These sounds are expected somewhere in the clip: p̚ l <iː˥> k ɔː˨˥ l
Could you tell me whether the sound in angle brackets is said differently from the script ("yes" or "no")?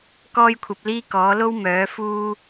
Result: no